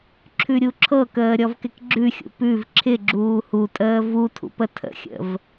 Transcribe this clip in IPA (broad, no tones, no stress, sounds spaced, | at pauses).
ǁʰ ʉ ɾʲ u ǁʰ ɤ k əː ɾʲ ɔ v k ɪ k ɡ͡ǁ ʉ xʲ ṵ p ʉ v ǁʰ ɪ ɡ͡ǁ uː h u tʼ əː v u tʰ ṵ p ə tʰ ə̰ xʲ ə̰ v